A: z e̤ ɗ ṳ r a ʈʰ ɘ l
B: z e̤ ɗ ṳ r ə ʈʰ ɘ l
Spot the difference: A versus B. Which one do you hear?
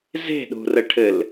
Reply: B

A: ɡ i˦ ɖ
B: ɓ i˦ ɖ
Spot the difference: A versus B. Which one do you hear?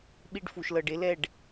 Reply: B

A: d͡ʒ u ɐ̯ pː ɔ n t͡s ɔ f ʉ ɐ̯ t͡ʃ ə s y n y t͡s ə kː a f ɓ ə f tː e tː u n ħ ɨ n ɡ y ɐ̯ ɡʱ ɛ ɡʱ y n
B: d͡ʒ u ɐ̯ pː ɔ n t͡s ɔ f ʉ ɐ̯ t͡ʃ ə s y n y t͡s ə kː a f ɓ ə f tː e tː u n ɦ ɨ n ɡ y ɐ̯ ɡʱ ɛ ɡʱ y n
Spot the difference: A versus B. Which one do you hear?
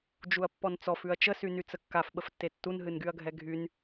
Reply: B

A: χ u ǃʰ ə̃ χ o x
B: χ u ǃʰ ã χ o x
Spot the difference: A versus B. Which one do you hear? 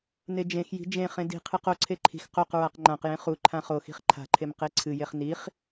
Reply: B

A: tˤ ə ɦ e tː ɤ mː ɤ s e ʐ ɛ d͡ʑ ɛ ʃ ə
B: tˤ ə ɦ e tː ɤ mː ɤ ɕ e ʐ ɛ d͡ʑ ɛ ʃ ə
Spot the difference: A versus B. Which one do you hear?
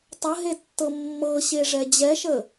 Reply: B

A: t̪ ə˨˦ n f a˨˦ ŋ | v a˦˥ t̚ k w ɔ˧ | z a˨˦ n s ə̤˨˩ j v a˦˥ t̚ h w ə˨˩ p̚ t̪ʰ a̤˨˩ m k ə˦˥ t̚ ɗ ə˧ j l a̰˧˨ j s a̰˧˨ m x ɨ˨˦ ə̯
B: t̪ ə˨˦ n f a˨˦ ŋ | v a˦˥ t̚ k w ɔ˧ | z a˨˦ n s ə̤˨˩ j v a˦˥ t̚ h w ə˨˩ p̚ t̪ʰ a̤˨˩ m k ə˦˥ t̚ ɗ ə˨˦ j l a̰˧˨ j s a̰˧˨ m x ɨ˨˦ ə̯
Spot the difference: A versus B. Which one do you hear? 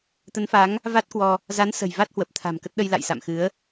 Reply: A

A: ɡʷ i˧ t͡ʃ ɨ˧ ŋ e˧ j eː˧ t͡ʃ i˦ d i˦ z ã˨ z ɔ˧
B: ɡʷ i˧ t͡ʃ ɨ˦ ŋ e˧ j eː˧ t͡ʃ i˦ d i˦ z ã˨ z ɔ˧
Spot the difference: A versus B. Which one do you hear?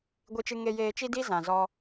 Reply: A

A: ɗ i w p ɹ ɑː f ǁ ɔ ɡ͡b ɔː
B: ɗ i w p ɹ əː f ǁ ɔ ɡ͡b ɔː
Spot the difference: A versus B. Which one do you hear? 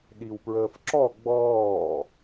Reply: B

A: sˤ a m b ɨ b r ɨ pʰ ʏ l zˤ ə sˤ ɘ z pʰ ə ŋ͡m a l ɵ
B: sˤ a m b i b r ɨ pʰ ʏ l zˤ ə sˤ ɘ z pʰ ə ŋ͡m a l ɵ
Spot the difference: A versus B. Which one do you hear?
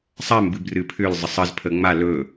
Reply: A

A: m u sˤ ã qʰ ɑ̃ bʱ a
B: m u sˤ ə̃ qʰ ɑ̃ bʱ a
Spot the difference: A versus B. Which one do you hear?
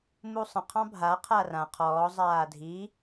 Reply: B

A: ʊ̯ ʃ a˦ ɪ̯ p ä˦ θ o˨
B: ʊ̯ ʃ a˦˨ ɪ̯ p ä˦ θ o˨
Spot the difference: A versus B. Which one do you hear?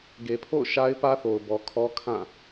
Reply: A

